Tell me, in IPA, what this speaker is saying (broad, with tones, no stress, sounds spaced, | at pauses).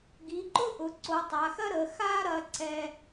ɡ i˩˧ ǃ ʊ˥ ʔ ʊ˩˧ ǀ o˩˧ tˤ a˩˧ x ɐ˥ ɾ ə˩˧ x a˥ ɾ ɐ˧ ǀ ɛ˥